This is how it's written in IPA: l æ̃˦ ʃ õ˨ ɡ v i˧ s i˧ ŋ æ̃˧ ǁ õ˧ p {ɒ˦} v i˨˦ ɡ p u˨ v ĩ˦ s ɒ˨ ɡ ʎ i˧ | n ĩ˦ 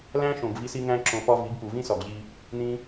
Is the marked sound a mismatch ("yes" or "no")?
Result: no